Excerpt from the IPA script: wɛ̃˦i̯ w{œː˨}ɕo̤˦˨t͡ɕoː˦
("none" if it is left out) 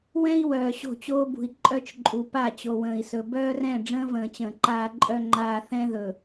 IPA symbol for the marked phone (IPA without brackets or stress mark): œː˨